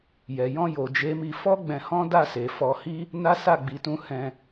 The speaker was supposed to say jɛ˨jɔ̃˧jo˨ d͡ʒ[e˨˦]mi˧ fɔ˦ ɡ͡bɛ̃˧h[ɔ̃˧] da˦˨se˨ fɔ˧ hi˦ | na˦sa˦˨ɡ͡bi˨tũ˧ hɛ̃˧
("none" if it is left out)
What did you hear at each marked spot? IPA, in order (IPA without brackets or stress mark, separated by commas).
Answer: e˨˦, ɔ̃˦